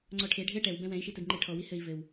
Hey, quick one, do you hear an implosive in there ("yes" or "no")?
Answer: no